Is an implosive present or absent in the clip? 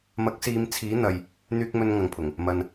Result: absent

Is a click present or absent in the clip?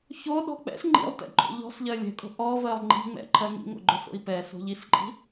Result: present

